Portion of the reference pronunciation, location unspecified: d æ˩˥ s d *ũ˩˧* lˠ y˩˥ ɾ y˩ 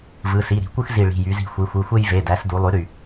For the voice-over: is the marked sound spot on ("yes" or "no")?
no